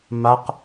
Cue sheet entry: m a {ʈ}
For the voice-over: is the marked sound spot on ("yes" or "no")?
no